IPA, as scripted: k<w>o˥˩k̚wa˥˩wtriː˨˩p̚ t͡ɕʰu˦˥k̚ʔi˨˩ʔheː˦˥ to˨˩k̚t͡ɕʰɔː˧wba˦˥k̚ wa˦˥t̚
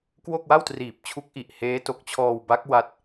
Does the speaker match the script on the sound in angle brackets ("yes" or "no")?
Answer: yes